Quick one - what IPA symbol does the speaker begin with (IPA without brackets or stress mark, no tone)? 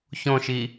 ç